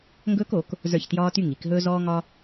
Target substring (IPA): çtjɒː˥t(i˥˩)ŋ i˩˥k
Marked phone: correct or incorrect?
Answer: incorrect: y˥˩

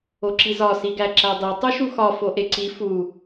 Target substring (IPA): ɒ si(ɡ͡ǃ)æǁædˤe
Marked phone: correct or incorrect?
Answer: incorrect: ɡ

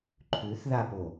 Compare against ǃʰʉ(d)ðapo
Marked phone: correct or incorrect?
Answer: incorrect: θ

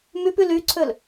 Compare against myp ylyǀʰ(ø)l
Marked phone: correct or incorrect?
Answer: correct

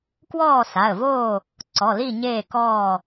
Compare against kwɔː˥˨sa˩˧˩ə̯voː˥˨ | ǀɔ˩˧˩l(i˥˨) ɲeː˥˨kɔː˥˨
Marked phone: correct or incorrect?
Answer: correct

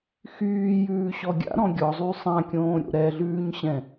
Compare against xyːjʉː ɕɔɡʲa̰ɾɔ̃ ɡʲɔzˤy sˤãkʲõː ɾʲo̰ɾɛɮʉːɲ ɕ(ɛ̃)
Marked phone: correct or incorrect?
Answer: correct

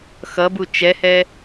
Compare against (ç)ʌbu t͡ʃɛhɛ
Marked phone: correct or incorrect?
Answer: incorrect: x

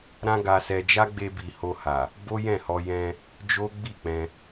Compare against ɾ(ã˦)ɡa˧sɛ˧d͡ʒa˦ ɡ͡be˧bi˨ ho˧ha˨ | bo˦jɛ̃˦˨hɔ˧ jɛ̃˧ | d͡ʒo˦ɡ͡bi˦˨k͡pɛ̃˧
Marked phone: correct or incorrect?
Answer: correct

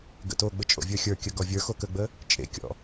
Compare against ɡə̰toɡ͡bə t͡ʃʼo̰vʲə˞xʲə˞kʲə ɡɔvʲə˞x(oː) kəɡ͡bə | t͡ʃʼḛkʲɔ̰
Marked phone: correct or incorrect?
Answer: incorrect: o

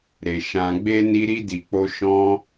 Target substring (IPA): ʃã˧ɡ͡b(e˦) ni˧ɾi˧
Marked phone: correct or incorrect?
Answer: correct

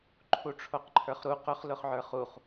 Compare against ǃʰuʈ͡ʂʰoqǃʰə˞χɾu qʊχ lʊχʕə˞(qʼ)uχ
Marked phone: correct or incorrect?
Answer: incorrect: χ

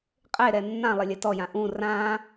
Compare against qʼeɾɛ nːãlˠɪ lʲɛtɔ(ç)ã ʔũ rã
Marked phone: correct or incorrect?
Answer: incorrect: j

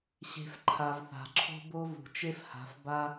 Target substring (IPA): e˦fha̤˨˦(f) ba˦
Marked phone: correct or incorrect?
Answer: correct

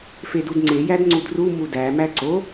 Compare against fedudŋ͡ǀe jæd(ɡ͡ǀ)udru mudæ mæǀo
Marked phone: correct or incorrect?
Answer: incorrect: ŋ͡ǀ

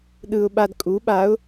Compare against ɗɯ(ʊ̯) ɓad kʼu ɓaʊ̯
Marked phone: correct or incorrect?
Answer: correct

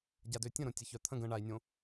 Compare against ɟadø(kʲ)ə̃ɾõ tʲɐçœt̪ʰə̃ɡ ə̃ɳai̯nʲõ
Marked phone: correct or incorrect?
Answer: incorrect: tʲ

